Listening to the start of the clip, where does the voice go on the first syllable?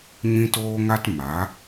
high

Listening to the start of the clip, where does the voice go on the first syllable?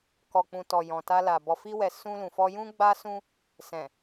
low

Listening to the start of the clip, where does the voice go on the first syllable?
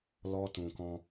high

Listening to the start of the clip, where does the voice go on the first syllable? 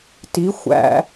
rising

